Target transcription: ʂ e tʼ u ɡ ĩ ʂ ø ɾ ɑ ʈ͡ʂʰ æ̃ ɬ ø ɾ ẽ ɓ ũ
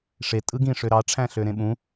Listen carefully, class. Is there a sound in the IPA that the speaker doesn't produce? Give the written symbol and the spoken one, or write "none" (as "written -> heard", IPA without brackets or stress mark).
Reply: u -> ɯ